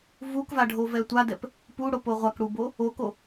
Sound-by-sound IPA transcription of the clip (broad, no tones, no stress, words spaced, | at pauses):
vukvaɖʱovɛ tʷadɛp | puɽopo ʁʷakɽubo | oko